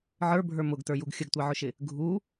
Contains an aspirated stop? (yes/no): no